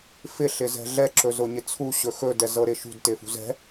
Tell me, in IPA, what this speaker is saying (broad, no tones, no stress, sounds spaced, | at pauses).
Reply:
f ɪ ɬ ɪ z ɛ̤ ɮ ɛ ǁ ɵ z ʊ ɲ ɪ t͡sʰ u ɕ ɵ x ɵ d ɛ z ɤ ɾ ɪ ʃ ṳ d t ɪ f ṳ z ɛ̤